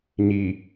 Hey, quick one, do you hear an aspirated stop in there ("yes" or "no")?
no